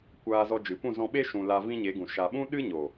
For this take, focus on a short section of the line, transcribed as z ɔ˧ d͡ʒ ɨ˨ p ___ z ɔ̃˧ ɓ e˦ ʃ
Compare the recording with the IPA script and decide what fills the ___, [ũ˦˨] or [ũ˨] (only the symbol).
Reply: ũ˦˨